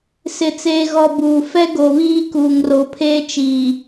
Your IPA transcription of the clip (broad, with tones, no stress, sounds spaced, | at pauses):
s ɪ˨ t͡s eː˨ ɣ ɔ˨ b uː˨ f ɛ˦ ɡ o˨ β iː˦ k uː˨ ŋ r o˨ pʰ eː˦ t͡ʃ iː˨